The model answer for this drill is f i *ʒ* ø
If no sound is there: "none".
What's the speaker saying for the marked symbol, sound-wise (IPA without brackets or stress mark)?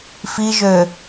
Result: ʒ